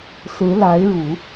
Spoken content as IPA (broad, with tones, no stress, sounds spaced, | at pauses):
s ɹ̩˧˥ l a˧˥ ɪ̯ ɻ u˨˩˦